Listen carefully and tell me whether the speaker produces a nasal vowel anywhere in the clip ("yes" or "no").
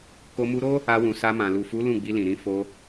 yes